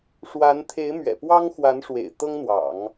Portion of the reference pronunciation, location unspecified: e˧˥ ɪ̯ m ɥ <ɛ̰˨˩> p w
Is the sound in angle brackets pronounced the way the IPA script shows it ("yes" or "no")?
yes